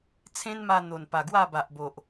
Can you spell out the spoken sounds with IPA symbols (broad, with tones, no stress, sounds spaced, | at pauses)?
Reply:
t͡sʰ ẽ˦ n m a˧ n̪ o˨˩ n p a˨˩ ɡ w a˥˧ b a˨ ʔ b o˨ ʔ